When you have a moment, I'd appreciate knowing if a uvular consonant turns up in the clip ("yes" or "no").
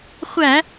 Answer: yes